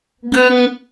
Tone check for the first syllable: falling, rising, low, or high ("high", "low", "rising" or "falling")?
high